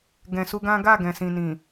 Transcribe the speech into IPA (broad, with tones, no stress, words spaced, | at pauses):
ɡɛ̃˨su˧ɡã˦ ɡa˦˨ɡɛ̃˨sĩ˨ nĩ˨